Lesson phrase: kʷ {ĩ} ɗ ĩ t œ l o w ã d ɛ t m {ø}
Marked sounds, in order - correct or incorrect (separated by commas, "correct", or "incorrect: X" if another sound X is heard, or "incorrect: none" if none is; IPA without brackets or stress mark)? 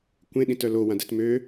incorrect: ẽ, correct